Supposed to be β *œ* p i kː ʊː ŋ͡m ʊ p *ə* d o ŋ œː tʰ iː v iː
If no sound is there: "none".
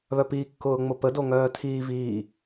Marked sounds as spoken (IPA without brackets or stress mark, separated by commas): œ, ə